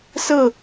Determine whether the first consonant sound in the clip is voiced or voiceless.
voiceless